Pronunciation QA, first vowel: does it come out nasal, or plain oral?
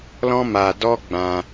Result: nasal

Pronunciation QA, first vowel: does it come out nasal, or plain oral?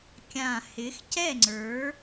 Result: nasal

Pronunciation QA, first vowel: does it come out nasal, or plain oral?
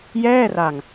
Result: oral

